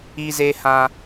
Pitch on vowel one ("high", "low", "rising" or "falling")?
high